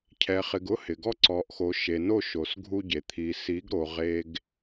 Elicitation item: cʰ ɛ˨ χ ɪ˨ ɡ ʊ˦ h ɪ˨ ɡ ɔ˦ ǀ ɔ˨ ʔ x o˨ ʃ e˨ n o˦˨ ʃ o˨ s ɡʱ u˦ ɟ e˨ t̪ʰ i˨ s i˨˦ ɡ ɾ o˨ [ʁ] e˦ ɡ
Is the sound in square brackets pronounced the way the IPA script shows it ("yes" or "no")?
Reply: yes